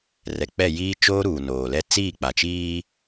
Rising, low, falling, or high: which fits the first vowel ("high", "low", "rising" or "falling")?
low